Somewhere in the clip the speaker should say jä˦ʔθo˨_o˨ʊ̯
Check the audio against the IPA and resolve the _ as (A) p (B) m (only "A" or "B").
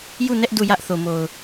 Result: B